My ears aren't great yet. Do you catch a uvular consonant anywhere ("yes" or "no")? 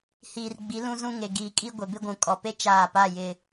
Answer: no